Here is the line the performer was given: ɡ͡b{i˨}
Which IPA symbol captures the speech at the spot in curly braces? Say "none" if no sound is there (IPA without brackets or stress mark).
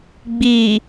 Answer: i˨